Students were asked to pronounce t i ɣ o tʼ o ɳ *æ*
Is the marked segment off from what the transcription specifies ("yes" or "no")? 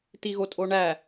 no